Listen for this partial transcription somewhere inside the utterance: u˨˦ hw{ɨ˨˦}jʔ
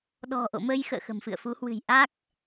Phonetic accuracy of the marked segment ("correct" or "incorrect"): incorrect